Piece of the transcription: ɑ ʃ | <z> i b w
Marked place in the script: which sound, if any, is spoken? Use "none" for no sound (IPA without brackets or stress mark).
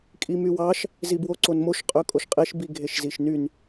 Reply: z